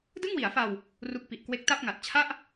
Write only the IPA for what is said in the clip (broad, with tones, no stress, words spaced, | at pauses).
dɯ˥˩ŋwi˩˦a̯fa˧w | ru˦˥k̚pi˨˩ʔkwe˦˥k̚ ta˥˩p̚ŋa˨˩t̚ t͡ɕʰa˥˩ʔ